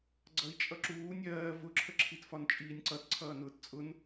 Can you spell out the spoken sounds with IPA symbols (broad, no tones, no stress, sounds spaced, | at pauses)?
ɡ͡ǀ ʌ i̯ t͡ʃʼ ʌ ǁ uː nʲ ɜː v ʊ ǁʰ ə ǁʰ i t f ɒ n t͡ʃʼ iː nʲ ǀ ʌ t ǀʰ ʌː n ʊː t t͡sʼ ʊ n